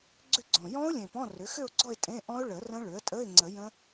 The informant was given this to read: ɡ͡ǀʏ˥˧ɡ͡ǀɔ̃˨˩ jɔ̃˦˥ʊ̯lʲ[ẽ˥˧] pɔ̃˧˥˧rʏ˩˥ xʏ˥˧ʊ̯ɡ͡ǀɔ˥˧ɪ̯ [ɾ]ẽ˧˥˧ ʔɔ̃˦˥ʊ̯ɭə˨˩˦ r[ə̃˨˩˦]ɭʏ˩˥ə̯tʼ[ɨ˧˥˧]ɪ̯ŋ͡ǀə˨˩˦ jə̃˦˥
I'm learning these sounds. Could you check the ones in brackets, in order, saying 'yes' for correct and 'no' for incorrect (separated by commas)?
no, no, no, no